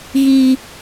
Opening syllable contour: high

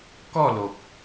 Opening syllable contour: falling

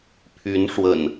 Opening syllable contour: rising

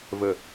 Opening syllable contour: falling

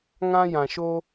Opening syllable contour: high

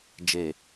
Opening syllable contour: low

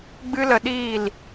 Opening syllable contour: high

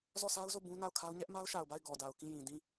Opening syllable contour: falling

